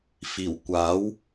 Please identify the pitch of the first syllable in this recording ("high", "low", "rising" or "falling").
low